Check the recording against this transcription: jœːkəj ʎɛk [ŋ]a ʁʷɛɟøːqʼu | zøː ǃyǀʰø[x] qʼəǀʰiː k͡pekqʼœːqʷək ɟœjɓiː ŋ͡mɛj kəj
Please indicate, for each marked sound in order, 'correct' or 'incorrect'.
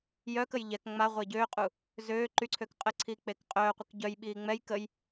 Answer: incorrect, incorrect

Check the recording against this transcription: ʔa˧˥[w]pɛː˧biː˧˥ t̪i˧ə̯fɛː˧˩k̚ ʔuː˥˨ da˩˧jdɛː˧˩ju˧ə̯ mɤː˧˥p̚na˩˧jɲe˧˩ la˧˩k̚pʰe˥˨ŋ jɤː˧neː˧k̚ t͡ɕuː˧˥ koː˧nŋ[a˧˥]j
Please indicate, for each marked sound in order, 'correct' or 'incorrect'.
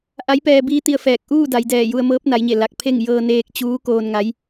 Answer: incorrect, correct

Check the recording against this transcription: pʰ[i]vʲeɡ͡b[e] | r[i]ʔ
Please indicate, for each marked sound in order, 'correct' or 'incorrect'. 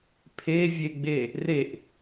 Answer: incorrect, correct, incorrect

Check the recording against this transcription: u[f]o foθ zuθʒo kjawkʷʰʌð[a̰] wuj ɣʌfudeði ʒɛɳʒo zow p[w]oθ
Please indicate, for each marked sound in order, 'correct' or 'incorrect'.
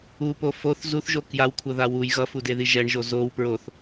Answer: incorrect, incorrect, incorrect

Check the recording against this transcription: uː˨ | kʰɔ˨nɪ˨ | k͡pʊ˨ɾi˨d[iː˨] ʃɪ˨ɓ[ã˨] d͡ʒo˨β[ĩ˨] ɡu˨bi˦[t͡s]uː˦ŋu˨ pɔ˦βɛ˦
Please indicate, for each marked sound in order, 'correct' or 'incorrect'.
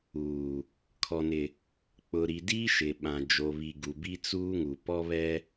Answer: incorrect, correct, incorrect, correct

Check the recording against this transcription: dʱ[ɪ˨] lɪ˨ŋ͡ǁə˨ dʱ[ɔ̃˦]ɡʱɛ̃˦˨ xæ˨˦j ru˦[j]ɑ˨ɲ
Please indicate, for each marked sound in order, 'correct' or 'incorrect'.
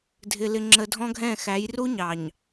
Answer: correct, correct, incorrect

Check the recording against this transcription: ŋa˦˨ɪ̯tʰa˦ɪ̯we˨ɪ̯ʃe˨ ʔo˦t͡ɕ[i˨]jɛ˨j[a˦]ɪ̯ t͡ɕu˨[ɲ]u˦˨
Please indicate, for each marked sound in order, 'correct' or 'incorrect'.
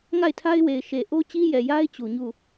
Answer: incorrect, correct, correct

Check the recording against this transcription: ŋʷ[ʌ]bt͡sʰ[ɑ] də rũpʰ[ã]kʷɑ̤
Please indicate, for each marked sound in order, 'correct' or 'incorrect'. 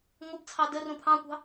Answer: correct, correct, incorrect

